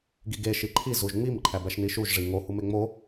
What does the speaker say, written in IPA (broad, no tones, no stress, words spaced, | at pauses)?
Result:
ɡiɡe ʃiǃʰi zuʒŋ͡mim ǃʰæbæʃniʃuʒ ʐiŋo humeŋ͡mo